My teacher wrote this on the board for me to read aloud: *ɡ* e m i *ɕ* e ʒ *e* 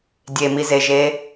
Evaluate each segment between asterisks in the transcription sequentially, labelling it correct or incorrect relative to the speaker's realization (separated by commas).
incorrect, incorrect, correct